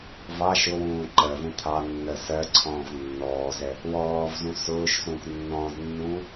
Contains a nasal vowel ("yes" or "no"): yes